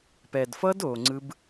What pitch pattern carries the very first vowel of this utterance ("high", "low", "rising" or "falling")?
low